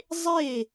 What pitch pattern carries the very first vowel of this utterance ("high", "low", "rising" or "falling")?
falling